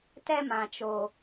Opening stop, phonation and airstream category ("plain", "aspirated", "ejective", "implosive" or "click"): plain